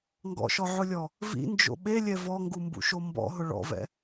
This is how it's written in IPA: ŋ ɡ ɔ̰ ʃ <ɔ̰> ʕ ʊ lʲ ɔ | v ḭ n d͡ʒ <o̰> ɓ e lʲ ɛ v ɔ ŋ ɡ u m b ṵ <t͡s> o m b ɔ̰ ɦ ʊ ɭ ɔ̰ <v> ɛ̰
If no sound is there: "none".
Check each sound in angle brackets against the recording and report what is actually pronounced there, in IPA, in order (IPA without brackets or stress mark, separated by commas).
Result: ɔ, o̰, ʃ, v